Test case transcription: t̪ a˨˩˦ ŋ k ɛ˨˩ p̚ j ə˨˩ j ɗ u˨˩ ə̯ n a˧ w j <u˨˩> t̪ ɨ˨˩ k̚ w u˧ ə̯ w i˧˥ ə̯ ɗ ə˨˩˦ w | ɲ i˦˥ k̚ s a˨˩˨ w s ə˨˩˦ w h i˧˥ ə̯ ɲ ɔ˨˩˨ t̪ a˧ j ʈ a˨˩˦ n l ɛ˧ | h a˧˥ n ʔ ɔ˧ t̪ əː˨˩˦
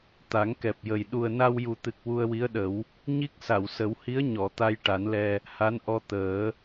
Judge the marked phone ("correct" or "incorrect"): correct